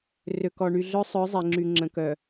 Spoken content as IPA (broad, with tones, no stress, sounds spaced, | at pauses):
r ø˨ k ɔ˨ ɳ y˨ ɮ œ˦ sˤ œ˨˦ zˤ e˨ ŋ͡ǁ y˨ ŋ͡ǁ ə̃˨ k œ˨